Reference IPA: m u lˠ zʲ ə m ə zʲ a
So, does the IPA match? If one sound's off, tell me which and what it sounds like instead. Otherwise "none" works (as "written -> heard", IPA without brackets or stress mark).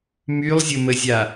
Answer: u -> y